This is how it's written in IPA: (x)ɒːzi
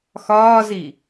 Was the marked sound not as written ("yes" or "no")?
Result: no